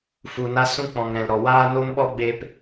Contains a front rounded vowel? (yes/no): no